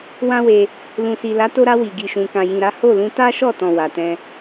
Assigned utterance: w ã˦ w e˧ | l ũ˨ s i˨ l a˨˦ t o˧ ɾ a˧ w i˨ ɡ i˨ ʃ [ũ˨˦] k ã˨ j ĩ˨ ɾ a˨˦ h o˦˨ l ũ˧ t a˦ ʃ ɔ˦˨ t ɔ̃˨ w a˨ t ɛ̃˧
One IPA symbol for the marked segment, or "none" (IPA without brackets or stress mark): ũ˨